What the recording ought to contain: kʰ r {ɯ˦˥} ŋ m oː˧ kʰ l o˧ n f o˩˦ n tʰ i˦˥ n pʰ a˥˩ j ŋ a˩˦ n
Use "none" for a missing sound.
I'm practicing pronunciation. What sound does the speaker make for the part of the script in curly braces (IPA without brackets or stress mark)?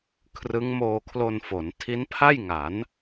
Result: ɯ˦˥